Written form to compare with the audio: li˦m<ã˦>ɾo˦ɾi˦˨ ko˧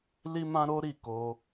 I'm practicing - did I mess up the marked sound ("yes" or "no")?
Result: no